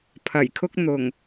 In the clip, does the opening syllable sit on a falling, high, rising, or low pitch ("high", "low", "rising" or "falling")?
low